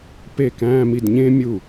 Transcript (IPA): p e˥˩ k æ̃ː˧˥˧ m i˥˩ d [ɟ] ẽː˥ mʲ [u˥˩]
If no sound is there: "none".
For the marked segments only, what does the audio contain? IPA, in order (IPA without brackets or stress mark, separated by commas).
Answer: ɲ, u˥˩